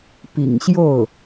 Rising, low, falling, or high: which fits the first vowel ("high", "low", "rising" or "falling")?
low